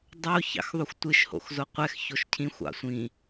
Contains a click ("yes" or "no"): no